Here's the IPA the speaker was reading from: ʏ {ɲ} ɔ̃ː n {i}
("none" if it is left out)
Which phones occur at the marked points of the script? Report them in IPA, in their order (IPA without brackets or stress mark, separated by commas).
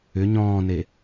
ɲ, e